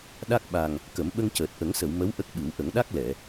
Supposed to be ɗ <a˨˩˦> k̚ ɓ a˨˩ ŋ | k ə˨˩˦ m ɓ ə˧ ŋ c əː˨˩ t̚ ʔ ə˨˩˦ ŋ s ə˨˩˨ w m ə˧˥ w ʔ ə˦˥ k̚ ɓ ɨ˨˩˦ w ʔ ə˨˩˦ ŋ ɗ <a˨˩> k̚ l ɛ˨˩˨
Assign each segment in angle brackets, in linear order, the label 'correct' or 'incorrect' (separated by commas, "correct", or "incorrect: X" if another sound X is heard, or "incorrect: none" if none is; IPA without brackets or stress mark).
incorrect: a˦˥, incorrect: a˦˥